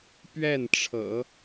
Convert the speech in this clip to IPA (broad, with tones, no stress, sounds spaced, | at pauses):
p ɥ ɛ˥˩ n ʈ͡ʂʰ ɤ̰˨˩˦